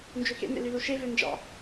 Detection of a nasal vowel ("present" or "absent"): absent